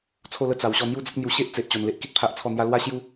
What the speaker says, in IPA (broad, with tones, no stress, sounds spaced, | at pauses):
t͡sʰ o˥˧ l ə˦ t͡s a˨˩ w ɕ ɔ˧ n̪ j u˥˧ d͡z ə˦ k̚ n̪ j u˧ ɕ e˦ ʔ t͡s e˨ ʔ t͡ɕ o˨˩ n l e˦ ʔ k i˦ t̚ pʰ a˦ ʔ t͡sʰ ɔ˥˧ n̪ j a˦ l w a˦ ɕ j u˦